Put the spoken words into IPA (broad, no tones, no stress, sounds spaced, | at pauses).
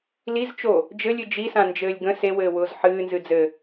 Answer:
l i z t͡ʃ o | d͡ʒ ɘ lʲ ɨ d͡ʒ i s ã n d͡ʒ ɘː lʲ ɡ ə̃ s e w ɘː w ʊː z ħ ɨː n z ɨ d͡z ɘ